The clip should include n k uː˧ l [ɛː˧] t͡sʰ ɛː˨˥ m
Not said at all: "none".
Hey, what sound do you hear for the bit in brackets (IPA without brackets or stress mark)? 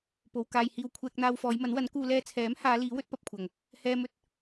ɛː˧